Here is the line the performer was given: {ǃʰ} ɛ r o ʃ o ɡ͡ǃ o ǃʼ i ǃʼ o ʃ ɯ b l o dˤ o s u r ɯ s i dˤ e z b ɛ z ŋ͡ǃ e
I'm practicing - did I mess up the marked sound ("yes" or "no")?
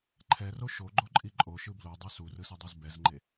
no